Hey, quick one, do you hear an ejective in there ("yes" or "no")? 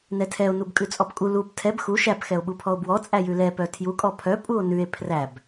yes